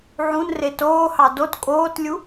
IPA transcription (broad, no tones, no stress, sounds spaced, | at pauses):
ʕ ũ n r e t oː h ɑ d o t kʼ oː t lʲ u